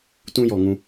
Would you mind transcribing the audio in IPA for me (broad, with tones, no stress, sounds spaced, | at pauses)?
t ũ˦ j ɔ˨ ŋ ũ˧